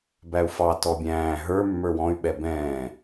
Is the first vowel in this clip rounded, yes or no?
no